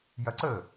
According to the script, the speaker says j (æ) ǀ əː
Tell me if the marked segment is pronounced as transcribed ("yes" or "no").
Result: no